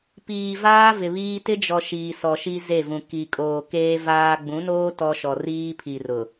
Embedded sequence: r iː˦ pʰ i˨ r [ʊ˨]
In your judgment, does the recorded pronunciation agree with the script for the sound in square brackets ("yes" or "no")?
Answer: yes